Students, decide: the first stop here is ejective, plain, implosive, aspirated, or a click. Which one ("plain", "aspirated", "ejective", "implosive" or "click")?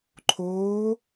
click